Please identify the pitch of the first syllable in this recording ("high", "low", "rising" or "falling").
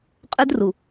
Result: high